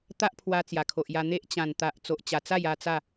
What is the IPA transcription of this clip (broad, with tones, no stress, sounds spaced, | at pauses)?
t̪ a˦ ʔ pʰ w a˧ t͡s j a˨˩ kʰ o˨ ʔ j a˧ n̪ e˦ ʔ t͡ɕ ã˨˩ n t̪ a˨ ʔ t͡s o˨ ʔ t͡ɕ a˨˩ t͡s a˥˧ j a˥˧ t͡s a˥˧